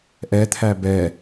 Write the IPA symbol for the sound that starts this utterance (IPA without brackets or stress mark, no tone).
ʔ